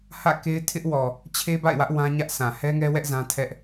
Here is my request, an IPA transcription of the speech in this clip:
hä̰˦˨ke˦ɪ̯tʰɪ˦ʔ wɔ˨ | t͡ɕʰe˦ba̰˦˨ɪ̯wä˦ʔ wã˦ɲä˦ʔsã˨ hɛ˦ŋɛ˦wɛ˦ʔ zã˦tʰɛ˦ʔ

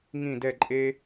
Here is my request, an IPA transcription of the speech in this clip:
ŋĩ˧˩dɛ˧˩ǃʼe˧

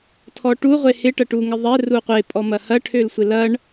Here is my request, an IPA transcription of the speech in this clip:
tʰɔʈu ʁʷehɪ ʈɐʈuŋɪðˤɛ ruqʷe pʼɔmɐhɐ ʈʰølsʷɪlɐɳ

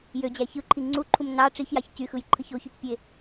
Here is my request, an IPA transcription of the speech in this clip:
jød͡ʑæ çɯǃʰi ŋ͡ǀuǃʰum nɑ ʈ͡ʂiçjɑç cyxɯjǃʰɯç oçycpʲe

